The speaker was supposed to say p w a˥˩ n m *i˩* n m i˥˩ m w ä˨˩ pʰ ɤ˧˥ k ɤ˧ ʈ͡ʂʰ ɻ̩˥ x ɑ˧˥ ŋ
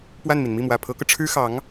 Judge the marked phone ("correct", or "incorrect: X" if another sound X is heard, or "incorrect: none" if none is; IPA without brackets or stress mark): correct